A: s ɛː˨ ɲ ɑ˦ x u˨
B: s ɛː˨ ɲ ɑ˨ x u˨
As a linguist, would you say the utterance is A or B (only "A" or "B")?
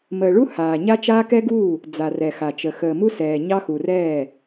A